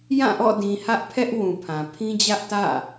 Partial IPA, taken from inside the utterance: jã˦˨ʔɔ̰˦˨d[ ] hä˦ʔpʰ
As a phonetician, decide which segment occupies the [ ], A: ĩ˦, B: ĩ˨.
B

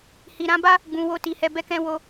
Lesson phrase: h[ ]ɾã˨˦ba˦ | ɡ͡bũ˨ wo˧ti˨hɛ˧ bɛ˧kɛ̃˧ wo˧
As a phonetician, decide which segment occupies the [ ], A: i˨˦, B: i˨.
B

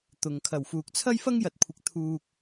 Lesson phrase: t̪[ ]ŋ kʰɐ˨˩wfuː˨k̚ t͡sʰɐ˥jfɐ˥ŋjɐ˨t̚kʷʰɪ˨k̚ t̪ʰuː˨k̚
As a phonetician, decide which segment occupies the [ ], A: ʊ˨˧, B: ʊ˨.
B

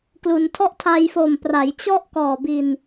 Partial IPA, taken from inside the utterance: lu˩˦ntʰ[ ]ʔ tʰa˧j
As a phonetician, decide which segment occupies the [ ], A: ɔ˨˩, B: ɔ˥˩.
B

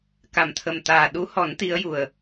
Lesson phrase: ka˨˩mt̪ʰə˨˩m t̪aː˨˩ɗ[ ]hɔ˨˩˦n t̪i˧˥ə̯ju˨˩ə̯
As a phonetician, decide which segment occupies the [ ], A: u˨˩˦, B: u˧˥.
B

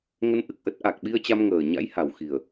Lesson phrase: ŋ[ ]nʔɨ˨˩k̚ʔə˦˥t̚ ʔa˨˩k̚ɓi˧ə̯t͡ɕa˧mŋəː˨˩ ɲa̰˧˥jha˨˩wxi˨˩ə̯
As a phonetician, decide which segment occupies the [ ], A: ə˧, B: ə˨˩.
A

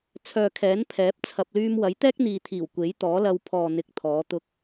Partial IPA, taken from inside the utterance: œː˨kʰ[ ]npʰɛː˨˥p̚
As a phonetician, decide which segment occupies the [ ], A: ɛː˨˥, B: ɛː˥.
A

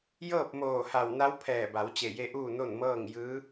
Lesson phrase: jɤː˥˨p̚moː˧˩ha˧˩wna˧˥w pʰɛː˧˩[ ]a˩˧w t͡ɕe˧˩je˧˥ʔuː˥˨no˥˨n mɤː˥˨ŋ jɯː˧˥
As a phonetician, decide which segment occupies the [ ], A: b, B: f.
A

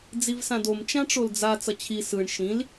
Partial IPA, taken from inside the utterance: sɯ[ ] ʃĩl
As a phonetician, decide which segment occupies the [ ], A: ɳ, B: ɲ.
A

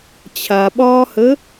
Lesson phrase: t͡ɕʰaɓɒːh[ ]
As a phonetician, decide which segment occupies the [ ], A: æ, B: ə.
B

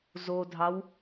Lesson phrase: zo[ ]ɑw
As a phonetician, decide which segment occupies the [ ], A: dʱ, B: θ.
A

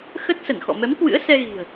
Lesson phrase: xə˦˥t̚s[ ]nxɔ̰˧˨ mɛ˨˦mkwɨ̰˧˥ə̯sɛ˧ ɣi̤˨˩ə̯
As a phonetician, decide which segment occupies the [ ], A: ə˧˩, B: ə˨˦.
A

